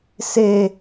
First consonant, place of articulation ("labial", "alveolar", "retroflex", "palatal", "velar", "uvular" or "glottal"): alveolar